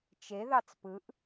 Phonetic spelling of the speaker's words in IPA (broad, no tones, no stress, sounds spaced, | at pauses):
t͡ʃ e ð ɑ t͡s p ɯ ʔ